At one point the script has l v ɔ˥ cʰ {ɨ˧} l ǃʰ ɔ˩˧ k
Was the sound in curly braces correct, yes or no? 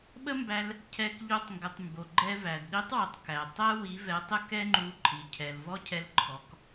no